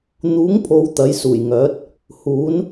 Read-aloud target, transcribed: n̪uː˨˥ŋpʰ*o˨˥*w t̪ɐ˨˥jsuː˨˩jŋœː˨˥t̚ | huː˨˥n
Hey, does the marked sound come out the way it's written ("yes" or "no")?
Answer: no